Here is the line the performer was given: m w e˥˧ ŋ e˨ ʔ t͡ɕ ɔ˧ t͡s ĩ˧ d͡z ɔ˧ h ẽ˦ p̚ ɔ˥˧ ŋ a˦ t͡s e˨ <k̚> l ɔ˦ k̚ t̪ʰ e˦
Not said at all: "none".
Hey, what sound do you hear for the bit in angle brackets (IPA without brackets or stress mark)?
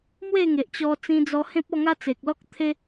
k̚